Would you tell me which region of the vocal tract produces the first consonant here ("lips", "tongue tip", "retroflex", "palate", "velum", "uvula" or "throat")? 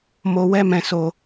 lips